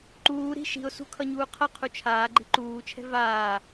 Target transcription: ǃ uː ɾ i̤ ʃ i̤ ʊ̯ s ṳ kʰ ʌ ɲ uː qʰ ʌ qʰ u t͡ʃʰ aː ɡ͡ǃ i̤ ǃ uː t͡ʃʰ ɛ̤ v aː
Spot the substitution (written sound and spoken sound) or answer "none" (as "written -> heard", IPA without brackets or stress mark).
none